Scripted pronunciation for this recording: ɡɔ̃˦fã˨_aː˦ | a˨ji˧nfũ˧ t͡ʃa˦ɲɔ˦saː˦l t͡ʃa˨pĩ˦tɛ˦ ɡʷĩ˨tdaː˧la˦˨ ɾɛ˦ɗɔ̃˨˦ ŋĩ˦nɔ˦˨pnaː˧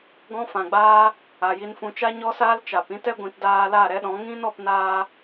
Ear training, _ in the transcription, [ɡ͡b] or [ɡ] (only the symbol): ɡ͡b